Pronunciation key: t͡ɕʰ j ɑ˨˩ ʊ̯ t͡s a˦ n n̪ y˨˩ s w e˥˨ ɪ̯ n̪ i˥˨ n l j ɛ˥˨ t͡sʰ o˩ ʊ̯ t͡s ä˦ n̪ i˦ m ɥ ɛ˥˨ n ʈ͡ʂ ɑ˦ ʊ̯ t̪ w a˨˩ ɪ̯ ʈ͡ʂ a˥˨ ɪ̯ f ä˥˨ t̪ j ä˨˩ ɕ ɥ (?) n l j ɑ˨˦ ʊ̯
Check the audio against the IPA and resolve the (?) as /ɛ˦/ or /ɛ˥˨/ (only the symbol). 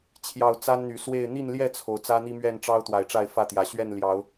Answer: ɛ˥˨